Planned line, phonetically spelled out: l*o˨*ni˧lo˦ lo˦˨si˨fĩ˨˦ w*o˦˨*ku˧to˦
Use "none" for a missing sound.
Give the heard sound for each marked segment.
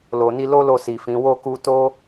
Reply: o˨, o˦˨

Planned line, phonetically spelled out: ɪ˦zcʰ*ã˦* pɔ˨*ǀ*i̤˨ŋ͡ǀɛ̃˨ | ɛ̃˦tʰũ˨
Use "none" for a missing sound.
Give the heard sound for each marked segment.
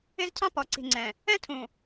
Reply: ɑ̃˦, ǀ

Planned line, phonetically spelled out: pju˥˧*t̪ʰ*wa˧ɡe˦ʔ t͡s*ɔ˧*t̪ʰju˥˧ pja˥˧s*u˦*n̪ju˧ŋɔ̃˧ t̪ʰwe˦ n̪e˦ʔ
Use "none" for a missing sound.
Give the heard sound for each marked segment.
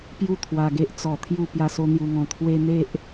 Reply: t̪ʰ, ɔ˧, o˦

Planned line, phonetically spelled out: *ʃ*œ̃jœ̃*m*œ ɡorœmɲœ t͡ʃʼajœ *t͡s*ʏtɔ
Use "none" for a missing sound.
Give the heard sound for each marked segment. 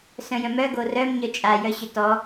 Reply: s, m, ɕ

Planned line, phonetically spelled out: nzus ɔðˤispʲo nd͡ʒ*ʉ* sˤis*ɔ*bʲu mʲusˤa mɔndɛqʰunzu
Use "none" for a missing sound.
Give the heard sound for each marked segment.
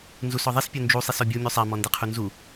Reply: u, ɔ

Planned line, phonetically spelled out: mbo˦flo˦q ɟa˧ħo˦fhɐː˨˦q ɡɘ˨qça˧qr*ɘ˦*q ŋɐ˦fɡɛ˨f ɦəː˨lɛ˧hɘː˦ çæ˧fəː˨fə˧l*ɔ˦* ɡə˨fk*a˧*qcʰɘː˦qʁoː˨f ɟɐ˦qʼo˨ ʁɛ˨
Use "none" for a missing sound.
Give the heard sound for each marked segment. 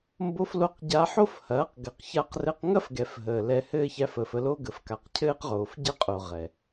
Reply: ɘ˧, o˦, a˨

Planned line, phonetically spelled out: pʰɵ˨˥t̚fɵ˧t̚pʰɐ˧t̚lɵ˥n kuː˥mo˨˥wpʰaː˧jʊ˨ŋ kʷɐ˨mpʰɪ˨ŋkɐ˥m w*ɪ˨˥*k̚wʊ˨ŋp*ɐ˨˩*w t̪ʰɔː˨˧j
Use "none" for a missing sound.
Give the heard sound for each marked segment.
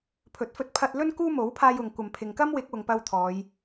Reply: ɪ˨˥, ɐ˧

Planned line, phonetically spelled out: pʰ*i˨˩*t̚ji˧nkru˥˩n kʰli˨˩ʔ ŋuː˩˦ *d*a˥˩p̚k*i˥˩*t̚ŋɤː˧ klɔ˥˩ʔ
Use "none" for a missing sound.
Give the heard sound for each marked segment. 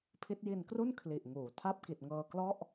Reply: i˦˥, tʰ, i˨˩

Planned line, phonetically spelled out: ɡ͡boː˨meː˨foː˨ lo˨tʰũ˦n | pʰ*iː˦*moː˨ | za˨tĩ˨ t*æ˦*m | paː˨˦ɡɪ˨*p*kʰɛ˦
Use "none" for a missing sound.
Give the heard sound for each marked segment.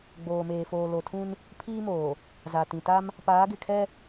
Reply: iː˦, a˦, none

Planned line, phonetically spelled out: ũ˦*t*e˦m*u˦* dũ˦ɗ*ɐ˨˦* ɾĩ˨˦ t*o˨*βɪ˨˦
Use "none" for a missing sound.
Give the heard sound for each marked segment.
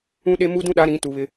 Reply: ɗ, u˦, a˨˦, u˨

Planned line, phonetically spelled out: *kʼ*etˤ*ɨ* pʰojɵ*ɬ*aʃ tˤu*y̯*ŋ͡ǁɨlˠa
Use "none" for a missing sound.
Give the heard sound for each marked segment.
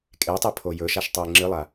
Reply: kʼ, i, ʃ, i̯

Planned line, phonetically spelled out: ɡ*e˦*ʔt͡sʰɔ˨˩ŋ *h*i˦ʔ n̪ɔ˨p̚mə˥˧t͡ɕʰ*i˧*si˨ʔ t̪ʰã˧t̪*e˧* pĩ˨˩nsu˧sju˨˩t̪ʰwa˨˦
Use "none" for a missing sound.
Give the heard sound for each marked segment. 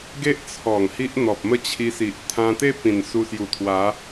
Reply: e˦, h, i˧, e˦

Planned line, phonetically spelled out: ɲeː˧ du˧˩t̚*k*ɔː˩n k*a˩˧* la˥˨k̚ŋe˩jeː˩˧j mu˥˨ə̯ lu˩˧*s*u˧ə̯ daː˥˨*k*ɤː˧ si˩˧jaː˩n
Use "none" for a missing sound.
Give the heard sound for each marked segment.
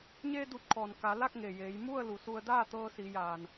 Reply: kʰ, a˩˧, s, t̪

